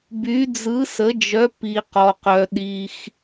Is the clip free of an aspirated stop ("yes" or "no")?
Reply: yes